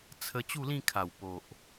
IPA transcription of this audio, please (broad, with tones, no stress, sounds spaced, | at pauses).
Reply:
t͡sʰ ə˧ t͡ɕ u˥˧ l ĩ˥˧ kʰ a˨˩ w p o˨ ʔ